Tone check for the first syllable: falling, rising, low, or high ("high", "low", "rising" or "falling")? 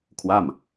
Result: falling